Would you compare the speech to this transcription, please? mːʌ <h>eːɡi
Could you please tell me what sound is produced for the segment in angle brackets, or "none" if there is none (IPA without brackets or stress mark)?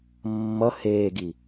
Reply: h